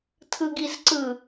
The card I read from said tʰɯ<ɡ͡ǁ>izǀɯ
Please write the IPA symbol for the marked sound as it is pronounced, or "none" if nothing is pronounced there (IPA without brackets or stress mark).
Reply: ɡ